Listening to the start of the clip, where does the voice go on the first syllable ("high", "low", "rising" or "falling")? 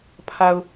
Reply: low